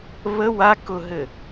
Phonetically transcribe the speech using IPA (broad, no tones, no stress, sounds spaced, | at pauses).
β ə w a k ʊ ɦ ɘ